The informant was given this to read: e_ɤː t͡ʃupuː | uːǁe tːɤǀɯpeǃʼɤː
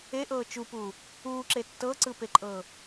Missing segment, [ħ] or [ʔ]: ʔ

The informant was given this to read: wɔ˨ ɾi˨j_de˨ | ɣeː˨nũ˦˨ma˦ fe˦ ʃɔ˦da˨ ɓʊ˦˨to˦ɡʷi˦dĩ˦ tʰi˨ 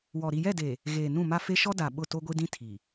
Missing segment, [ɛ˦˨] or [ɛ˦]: ɛ˦˨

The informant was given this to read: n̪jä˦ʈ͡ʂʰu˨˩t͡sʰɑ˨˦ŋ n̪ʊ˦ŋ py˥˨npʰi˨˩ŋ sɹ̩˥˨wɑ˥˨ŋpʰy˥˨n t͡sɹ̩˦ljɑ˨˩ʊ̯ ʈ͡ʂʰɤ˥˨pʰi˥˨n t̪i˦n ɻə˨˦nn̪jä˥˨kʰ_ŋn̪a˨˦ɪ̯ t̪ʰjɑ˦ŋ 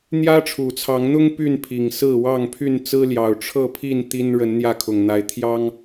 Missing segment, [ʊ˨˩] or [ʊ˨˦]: ʊ˨˩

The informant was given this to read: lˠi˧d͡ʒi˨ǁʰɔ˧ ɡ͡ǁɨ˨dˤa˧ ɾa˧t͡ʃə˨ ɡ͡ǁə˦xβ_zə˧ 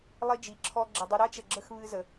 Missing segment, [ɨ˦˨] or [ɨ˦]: ɨ˦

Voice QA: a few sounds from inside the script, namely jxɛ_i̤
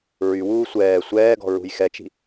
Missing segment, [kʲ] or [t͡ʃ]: t͡ʃ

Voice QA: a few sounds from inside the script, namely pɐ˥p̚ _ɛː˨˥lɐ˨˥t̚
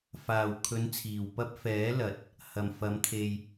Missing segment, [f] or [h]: f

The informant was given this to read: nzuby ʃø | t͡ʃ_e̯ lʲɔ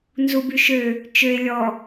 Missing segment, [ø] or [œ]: ø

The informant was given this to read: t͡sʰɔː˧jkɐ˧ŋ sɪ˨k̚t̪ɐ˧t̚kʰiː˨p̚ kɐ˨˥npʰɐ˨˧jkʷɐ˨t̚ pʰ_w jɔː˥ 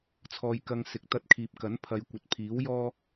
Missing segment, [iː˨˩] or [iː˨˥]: iː˨˥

